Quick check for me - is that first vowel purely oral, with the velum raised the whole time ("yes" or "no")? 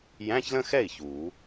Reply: no